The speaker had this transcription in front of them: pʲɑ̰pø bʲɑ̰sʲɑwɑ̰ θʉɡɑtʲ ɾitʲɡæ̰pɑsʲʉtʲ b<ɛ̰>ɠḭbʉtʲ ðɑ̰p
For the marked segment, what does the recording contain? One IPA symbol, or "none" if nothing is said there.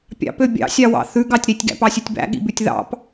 æ̰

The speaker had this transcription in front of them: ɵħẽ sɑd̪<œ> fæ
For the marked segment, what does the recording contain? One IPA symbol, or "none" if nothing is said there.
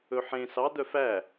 œ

